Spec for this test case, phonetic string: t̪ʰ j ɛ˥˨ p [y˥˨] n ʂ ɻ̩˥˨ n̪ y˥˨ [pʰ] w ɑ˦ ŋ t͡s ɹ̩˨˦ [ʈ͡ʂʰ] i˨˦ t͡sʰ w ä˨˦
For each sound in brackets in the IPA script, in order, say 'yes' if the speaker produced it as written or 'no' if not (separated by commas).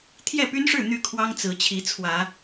no, no, no